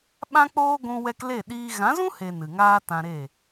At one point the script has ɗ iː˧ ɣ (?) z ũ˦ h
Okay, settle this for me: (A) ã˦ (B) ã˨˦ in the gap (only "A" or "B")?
B